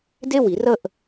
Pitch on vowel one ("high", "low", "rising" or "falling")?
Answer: falling